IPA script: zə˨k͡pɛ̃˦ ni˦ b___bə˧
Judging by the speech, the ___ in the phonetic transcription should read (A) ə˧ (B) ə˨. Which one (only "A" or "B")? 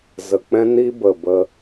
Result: B